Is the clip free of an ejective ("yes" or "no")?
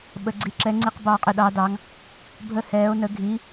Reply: no